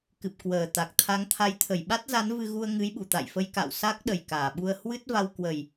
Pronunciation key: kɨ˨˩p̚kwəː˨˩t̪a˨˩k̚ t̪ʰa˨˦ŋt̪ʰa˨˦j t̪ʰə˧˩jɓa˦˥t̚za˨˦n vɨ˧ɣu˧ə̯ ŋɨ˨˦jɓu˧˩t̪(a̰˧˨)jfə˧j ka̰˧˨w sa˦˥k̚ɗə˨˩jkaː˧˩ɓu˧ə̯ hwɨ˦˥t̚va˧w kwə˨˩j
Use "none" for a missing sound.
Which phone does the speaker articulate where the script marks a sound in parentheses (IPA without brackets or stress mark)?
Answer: a̰˧˨